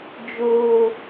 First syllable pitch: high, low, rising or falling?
low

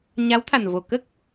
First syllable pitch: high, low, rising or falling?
rising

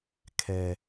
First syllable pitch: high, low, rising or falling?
low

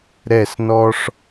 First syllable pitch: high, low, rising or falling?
falling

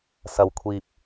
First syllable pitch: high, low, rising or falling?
low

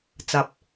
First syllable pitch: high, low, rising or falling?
low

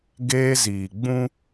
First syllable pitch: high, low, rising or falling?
high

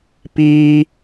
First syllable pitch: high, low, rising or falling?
high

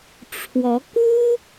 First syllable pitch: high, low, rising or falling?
rising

